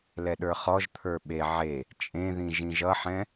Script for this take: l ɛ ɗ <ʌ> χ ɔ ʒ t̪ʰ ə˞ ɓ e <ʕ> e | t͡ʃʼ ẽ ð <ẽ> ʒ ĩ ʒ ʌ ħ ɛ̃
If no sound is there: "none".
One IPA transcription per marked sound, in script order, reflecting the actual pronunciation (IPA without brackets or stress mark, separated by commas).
ə˞, ʕ, ĩ